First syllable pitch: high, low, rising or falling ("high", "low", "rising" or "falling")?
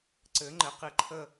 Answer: rising